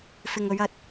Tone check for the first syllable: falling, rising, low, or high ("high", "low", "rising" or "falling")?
low